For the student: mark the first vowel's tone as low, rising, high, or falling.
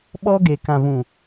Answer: high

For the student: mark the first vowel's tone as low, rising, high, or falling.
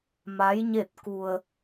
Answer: rising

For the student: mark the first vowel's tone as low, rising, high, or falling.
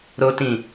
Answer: high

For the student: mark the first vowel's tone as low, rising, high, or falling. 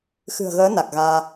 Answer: low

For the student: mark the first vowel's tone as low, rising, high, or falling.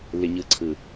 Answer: low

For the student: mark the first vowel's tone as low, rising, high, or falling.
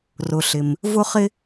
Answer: low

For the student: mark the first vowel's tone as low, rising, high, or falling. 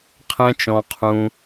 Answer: high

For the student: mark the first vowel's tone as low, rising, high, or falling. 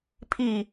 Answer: falling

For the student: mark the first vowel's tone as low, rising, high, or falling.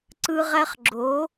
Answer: high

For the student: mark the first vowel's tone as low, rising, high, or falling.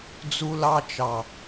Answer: high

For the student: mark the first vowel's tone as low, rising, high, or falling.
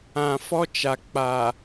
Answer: low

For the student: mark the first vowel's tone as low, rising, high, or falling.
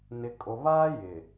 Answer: low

